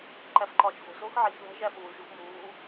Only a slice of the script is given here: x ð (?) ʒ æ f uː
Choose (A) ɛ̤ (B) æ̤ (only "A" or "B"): B